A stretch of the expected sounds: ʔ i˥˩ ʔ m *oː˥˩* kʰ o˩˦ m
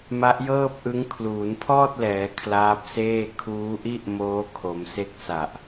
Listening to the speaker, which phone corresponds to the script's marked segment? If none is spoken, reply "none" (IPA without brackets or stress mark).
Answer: oː˦˥